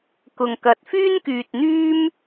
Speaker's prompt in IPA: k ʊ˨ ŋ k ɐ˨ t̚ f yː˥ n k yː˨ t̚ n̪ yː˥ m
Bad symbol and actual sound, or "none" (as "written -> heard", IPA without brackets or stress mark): none